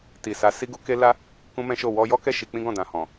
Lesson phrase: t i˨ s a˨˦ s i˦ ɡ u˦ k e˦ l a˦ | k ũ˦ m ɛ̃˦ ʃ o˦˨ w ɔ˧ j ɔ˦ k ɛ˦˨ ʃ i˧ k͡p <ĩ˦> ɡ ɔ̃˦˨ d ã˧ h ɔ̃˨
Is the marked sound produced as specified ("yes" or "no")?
yes